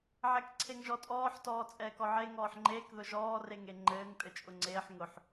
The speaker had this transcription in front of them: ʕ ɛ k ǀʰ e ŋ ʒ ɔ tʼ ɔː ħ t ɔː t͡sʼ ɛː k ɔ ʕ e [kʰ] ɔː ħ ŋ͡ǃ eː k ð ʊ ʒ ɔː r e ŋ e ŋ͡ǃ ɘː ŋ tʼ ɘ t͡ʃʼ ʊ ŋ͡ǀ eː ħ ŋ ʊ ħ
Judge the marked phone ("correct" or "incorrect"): incorrect